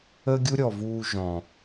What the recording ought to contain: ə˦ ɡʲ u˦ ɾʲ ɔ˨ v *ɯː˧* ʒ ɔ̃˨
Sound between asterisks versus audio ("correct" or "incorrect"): incorrect